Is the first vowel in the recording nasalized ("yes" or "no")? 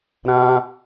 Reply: yes